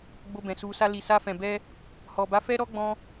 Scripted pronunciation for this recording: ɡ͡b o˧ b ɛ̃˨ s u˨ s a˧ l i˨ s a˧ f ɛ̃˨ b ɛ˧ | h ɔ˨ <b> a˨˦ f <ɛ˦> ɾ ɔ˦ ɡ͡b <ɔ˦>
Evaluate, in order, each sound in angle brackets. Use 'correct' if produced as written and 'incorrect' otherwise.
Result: correct, correct, incorrect: ɔ̃˦

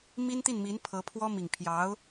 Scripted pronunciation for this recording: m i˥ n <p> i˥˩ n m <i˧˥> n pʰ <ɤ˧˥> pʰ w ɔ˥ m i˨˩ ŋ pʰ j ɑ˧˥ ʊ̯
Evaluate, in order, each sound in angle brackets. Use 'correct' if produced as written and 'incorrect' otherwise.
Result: incorrect: t̪, correct, correct

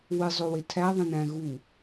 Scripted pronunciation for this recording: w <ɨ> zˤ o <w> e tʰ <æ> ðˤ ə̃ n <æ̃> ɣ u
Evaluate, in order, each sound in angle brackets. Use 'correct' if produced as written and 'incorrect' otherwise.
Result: correct, correct, correct, correct

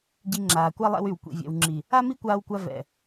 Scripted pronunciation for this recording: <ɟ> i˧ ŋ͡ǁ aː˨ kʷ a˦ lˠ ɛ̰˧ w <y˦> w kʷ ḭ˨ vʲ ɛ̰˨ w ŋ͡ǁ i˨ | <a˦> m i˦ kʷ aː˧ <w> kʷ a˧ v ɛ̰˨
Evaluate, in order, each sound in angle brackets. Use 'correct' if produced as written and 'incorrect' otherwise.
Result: correct, incorrect: y˨, correct, correct

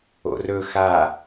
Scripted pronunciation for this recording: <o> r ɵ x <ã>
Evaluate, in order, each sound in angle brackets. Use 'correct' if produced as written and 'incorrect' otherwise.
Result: incorrect: o̰, incorrect: a

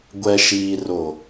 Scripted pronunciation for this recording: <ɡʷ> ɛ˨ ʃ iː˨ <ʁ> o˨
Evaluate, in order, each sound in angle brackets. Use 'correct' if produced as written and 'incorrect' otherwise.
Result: correct, incorrect: r

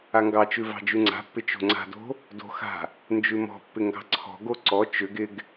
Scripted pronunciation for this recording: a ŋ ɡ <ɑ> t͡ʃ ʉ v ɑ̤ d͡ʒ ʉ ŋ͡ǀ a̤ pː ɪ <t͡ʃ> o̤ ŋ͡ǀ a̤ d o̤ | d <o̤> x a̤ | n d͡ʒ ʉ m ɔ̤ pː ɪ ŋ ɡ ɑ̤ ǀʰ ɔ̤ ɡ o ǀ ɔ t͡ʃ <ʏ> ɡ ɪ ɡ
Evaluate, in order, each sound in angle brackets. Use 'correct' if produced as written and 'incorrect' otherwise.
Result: correct, correct, correct, correct

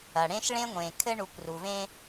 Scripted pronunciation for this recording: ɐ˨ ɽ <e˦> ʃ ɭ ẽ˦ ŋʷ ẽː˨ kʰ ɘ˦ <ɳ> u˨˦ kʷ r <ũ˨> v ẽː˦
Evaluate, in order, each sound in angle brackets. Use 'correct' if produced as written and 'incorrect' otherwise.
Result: incorrect: ẽ˦, correct, incorrect: u˨

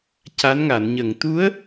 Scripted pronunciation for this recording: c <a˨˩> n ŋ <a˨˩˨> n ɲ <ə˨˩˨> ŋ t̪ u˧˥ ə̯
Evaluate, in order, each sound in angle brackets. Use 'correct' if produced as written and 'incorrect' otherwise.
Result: incorrect: a˧˥, correct, correct

